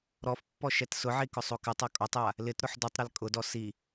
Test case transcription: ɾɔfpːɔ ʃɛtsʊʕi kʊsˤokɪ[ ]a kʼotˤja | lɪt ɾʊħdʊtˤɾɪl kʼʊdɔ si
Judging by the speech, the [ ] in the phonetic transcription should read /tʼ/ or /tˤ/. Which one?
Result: tˤ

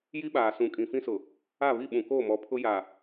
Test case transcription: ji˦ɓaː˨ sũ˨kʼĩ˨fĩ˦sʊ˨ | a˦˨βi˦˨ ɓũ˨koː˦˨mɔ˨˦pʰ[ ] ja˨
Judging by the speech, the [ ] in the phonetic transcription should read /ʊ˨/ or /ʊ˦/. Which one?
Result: ʊ˦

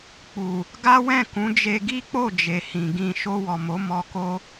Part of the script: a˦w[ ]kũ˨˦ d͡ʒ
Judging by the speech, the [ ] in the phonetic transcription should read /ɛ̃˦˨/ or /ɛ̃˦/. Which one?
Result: ɛ̃˦˨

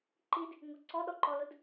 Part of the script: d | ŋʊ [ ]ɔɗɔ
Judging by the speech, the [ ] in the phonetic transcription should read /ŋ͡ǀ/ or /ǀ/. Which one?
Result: ǀ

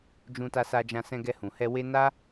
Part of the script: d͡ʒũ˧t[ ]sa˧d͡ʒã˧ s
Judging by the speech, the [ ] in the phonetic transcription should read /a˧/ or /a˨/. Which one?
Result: a˧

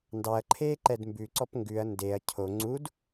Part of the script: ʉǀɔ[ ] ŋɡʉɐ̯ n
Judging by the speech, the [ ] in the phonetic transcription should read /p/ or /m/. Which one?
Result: p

